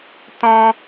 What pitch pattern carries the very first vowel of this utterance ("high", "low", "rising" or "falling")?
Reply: high